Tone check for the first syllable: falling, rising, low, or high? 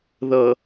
low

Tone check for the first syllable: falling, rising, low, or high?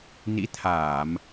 rising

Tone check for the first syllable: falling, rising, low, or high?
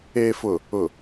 low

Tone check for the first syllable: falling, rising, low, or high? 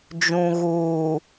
low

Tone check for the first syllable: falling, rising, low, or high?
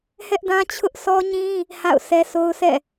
high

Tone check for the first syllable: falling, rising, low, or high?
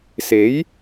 rising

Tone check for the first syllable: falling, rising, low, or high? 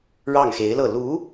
falling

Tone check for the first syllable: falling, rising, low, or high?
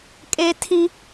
high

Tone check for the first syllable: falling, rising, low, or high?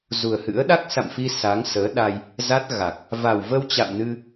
low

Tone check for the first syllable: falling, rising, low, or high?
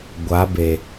rising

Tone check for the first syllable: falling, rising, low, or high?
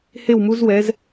falling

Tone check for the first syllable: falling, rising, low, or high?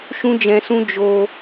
high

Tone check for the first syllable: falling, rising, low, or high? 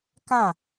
falling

